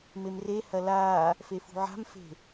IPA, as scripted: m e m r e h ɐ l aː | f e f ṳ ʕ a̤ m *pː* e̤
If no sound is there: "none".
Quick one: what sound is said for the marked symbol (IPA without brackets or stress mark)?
f